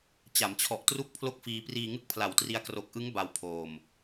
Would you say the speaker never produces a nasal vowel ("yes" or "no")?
yes